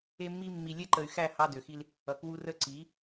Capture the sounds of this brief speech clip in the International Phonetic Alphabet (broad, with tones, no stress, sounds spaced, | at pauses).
e˧ mː i˧ mː i˨ lʲ ɛ˧ ǃ ə˨ y̯ x æ˦˨ h ɑ˧ d ø˨ x i˧ l | ʌ˨ k w u˧ r ə˦˨ ǀ i˨˦